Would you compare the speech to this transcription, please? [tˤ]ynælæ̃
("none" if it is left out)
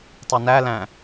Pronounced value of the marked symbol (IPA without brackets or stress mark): tˤ